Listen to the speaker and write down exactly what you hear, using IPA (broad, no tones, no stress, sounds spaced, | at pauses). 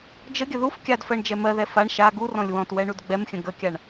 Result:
d͡ʒ ə ɡʲ ə ð u f kʲ a d f ɜ ɳ d͡ʒ ɛ m ɜ ð ɛ f a ɳ ʃ a ɡ u r ɔ̃ lʲ w ɔ̃ t w ɛ ɳ u d ɡ͡b ɛ m xʲ ə̃ ɡ ə kʲ a ɳ